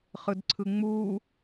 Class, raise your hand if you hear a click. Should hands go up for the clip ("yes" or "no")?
yes